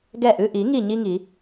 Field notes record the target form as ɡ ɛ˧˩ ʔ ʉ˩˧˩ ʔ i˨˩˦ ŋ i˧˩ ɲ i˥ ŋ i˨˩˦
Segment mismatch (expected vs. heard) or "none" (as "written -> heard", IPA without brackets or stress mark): none